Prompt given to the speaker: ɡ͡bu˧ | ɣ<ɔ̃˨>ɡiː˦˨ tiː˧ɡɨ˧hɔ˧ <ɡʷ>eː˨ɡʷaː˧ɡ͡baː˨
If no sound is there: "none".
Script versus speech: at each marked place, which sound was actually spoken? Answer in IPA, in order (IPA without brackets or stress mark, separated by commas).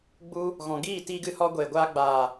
ɔ̃˨, ɡʷ